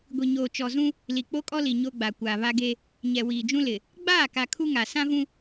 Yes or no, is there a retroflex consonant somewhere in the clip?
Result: no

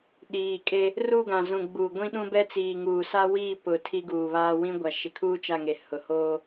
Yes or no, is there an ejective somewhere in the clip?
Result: yes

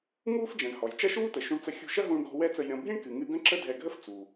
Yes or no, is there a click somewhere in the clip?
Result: yes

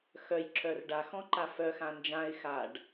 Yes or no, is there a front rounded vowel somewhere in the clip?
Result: yes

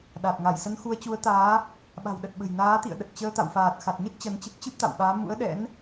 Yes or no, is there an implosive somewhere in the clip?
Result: yes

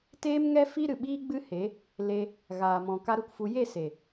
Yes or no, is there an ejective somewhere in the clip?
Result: no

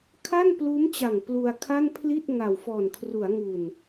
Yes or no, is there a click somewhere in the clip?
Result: no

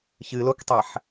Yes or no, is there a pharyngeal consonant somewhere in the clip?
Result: yes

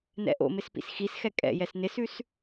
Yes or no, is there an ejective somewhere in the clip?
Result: yes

